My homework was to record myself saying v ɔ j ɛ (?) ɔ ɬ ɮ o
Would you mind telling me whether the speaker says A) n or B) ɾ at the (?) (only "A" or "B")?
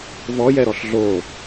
B